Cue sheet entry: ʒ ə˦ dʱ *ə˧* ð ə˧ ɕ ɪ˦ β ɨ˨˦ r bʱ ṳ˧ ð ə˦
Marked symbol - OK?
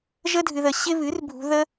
no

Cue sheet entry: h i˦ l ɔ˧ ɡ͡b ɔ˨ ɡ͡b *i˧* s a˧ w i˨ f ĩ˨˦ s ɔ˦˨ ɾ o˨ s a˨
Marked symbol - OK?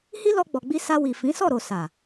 yes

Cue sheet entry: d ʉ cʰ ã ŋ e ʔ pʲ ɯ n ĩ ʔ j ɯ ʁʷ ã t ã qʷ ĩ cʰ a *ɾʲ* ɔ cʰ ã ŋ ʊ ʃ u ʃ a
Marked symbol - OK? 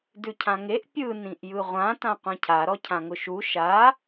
no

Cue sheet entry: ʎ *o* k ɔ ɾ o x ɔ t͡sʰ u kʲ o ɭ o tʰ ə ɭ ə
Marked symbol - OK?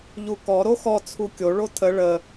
no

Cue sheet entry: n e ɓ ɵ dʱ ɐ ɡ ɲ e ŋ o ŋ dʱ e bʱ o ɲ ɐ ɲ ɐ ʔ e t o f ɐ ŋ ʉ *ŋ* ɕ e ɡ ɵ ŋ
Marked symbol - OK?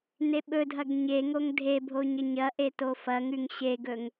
yes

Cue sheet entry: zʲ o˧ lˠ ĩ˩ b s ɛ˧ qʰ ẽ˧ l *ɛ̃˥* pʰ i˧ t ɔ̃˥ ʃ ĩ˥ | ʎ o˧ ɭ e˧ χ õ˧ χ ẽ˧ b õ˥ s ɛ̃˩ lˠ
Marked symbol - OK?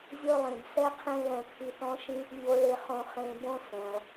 no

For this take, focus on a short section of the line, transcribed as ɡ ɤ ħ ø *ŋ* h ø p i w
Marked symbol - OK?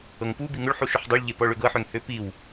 yes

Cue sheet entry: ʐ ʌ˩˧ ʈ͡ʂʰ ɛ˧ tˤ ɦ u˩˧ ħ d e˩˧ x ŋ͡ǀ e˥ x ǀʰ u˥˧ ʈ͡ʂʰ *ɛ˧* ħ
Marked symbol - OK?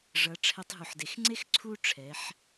no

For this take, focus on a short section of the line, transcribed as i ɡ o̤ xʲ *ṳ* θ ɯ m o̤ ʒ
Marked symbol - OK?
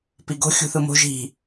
yes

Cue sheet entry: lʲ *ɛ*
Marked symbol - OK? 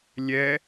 yes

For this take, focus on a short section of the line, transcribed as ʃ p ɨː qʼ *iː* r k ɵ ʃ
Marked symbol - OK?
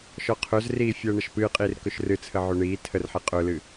yes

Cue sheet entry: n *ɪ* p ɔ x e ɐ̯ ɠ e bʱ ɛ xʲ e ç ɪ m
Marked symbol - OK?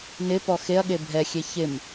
yes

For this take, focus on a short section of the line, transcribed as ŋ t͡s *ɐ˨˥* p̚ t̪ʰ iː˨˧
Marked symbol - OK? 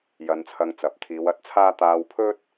yes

